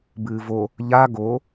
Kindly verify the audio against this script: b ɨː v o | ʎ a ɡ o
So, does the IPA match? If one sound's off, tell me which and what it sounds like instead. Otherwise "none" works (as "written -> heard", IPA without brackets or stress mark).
none